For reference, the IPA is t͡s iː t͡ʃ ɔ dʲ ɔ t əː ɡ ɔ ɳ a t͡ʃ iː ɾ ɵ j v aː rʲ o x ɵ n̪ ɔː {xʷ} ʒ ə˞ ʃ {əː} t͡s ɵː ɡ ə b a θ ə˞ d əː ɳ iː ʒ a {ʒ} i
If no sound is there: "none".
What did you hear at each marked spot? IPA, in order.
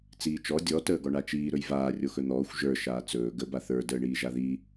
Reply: xʷ, aː, ð

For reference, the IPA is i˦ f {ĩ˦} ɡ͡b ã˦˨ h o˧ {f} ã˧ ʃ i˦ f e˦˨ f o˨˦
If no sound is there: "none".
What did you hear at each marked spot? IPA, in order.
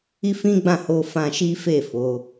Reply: ĩ˦, f

